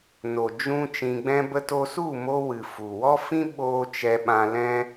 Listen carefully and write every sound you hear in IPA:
n o˨ d͡ʒ ũ˦ t͡ʃ ĩ˧ ɡ͡b ɛ̃˦ b ə˦ t o˦ s u˦˨ m o˧ w ɨ˨ f u˨ w ɔ˦ f ĩ˦ ɓ oː˦ t͡ʃ ɛ˧ ɓ ã˧ l ɛ̃˦

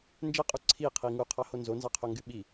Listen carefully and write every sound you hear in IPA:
n d͡ʒ e qʼ u ǀʰ i qʰ i ŋ u qʰ ɑ h o n z o n z ɑ qʰ o ŋ ɡ y ɓ i

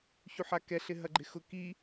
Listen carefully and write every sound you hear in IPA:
ç u ħ a k ɛ ɬ ɪ ɦ ɐ ɡ͡ǃ ɪ x ʊ k i

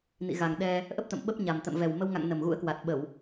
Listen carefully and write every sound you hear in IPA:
n ḭ˧˨ ɣ a˨˩ ŋ ɗ ɛ˧ | ʔ ə˦˥ p̚ t̪ ə̰˧˨ m ɓ ə˦˥ p̚ ɲ a˨˩ m t̪ ə̰˧˨ m v ɛ˨˩ w m ə˧ w ŋ a̰˧˨ ŋ n ə˨˩ m ɣ ṵ˧˥ ə̯ k w a˨˩ t̚ ɓ ə˧˩˨ w

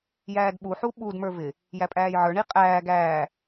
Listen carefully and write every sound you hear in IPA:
j æː d ɓ u ħ u ɓ u d m ə˞ v ɪ | j æ pʼ æː j ʕ ə˞ ɳ i qʼ æː ɡ æː

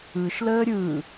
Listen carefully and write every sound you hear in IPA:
ɯ ʃ l əː ɾʲ ɯ

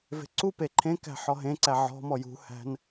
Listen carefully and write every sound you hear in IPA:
v e̤ ǀ u p e ǃʰ ẽ k æ̤ ħ ɔ ɦ ẽ ǀ æ ʕ ɔ̤ m ɔ j ṳ h æ̤ n

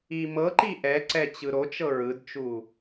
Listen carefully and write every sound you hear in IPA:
i m ɤ ǃ i ʔ ɛ ǀ ɛ t͡ɕ ɯ ɾ o t͡ʃ ɤ ɹ ɯ d t͡ʃ u

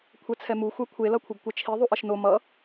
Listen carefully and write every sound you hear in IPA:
kʷʰ ɛ t͡sʰ ɛ m u xʷ ɛ kʷʰ e l ʌ kʷʰ ɯ ɡ kʷ ɛ t͡ʃʰ i ðˤ u ʔ ʌ ʃ n o m ʌ

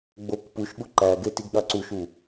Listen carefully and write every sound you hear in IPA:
ɡ͡b o k p u ʃ ɠ u ǃ æ ɡ e t i ɡ ɠ ɑ ǀ u ʃ u

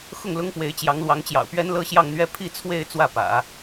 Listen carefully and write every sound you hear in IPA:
x ʊ˥˩ ŋ l ʊ˥ ŋ p w e˧˥ ɪ̯ t͡ɕ j ɑ˧˥ ŋ l w ɑ˧˥ ŋ t͡ɕ j ɑ̰˨˩ ʊ̯ p ɥ ɛ˥ n l ɤ˥ ɕ j ɑ˥˧ ŋ n̪ ɥ ɛ˥˧ pʰ i˥˧ t͡sʰ w e˥˧ ɪ̯ t͡s w ä˥˩ p ä̰˨˩˦

